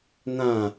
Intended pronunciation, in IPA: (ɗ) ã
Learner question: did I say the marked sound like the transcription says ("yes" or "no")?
no